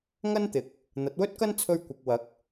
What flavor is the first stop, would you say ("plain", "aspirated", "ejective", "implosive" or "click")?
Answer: plain